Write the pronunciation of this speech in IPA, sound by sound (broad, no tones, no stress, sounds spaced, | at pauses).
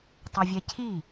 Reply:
tˤ ɛ vʲ ɛ cʰ i